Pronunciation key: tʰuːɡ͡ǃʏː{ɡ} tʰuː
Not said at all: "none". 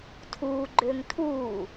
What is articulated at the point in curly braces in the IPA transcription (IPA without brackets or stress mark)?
ŋ